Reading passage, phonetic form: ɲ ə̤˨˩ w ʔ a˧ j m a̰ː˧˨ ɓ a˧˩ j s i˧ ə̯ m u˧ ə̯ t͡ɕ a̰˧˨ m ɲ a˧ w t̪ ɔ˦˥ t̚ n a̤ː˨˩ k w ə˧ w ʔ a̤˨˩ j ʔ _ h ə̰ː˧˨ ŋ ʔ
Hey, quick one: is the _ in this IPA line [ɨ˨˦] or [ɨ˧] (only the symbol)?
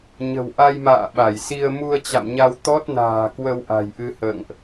ɨ˧